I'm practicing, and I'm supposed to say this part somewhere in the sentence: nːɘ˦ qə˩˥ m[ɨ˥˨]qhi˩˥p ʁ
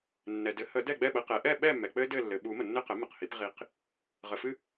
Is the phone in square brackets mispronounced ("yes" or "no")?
yes